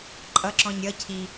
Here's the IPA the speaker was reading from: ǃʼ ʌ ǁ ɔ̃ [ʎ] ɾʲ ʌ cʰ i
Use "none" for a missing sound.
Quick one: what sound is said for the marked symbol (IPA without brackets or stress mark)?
ɲ